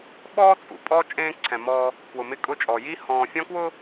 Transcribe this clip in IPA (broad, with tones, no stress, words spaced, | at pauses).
ɓɔː˦t͡sʼṵ˨ pʼɔ˦ t͡ʃʼẽː˦ǀʰɛ̃˨mɔː˦ | kwʊ˨mɪ˦kʼʊ˦t͡ʃʼɔ˨ ji˦hɔ̃ː˨fʲɔ̃˦kwʊ˦